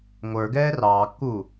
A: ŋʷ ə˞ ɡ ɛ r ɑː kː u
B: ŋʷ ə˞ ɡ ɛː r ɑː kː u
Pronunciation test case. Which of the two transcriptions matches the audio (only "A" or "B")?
B